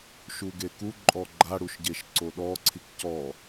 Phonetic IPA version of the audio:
ʃ u ɡ e k u ǃʼ ɔ ɡ͡ǃ a ɽ u ʃ ɟ e ʃ ǀ o ɗ ɔ ǀʰ i k c ɔ

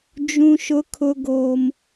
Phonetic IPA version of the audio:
d͡ʒ ũ˦ ʃ ʊ˦ kʰ ʊ˦ ɡ oː˦ m

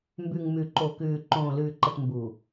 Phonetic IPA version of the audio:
m b ʉ˨ ŋ m ʉ˨ ǃ o˨ k ʉː˨ ǃ õː˨ l ʉː˨ ǃ ə˨ t m b u˨

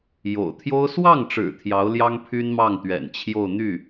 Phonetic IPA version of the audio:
j o̰˨˩ ʊ̯ t̪ʰ j o˥ ʊ̯ s w ɑ˥˩ ŋ ʈ͡ʂ ɻ̩˨˩ t̪ʰ j ɑ˧˥ ʊ̯ l j ɑ˥ ŋ pʰ y˥ n m ɑ˥˩ ŋ t̪ ɥ ɛ̰˨˩ n t͡ɕʰ j o˥˧ ʊ̯ n̪ y˥˩

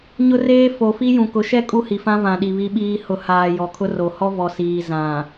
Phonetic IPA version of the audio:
ɲ ʊ˦ r eː˦ f o˨ f i˦ j ũ˨ k ʊ˨˦ ʃ ɛ˦ kʼ u˦ h i˨ f ã˦ v ã˨ ɗ i˨ β i˦ ɓ iː˦ h ʊ˨˦ h aː˨ j ɔ˨ kʰ ʊ˦ r o˨ h ɔ˦ v ɔ˨ s iː˨ z ã˨

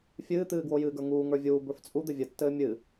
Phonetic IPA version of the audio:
fʲ ɨː t̪ ɨː ɡ w o j ɨː ɡ ə˞ ŋ uː ŋ ə˞ vʲ uː b ə˞ f t͡sʼ u d̪ ɘ vʲ ɘ tː ɘː mʲ ɨ

